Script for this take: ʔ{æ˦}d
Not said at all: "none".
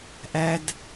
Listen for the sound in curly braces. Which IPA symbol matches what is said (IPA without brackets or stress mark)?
æ˦